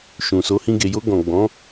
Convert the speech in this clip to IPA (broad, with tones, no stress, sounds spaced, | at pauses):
ʃ ũ˨ s o˨˦ h ĩ˧ ɡ e˨ j o˧ ɡ ɔ̃˨ ɡ͡b ɔ̃˨˦